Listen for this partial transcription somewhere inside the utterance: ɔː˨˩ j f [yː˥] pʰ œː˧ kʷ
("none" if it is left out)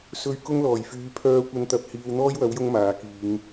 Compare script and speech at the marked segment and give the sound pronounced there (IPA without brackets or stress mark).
yː˨˧